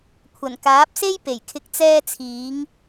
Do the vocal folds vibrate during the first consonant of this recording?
no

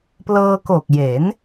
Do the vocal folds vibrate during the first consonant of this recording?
no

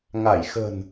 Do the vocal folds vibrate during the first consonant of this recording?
yes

